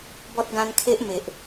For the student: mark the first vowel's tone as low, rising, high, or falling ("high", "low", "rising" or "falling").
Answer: high